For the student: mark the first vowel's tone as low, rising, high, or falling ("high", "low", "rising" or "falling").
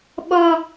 high